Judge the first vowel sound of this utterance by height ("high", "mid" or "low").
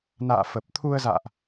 low